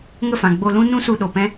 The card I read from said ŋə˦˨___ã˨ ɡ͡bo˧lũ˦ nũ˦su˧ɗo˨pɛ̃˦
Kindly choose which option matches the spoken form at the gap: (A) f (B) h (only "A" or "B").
A